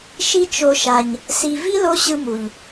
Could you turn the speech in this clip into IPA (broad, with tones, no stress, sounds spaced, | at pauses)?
ʃ i˧ t͡ʃ o˨ ʃ a˨ ɲ | s i˨ v i˦ l o˧ ɕ ɯ˧ m u˨ ʎ